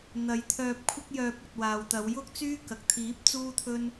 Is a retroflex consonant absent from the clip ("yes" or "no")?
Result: yes